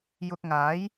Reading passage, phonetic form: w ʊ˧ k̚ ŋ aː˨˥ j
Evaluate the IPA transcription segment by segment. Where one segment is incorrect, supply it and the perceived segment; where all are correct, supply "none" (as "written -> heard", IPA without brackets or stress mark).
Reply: w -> j